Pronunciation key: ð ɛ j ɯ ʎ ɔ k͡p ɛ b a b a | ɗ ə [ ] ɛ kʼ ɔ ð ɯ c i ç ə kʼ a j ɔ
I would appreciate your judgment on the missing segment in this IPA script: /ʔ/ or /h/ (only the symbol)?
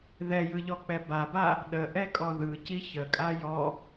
ʔ